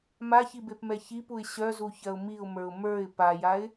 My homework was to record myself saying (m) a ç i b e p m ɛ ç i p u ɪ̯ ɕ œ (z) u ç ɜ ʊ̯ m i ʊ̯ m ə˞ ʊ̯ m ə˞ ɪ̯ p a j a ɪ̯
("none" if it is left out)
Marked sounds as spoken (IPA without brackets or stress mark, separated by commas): m, z